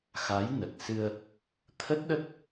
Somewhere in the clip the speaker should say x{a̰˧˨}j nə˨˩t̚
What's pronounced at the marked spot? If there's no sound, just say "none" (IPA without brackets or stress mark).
a˨˦